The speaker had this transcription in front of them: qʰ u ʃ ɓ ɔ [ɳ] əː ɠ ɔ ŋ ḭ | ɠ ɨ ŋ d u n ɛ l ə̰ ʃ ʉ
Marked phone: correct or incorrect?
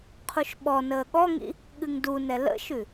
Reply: incorrect